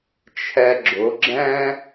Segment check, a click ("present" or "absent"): present